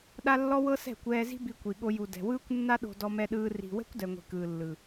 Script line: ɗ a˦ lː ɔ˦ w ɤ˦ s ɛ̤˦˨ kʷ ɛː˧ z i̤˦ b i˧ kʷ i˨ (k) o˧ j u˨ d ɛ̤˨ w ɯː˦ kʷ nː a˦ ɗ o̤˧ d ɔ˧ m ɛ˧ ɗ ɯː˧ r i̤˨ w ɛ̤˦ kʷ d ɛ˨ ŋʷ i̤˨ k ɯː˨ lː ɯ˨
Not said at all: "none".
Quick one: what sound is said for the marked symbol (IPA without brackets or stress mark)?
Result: ɠ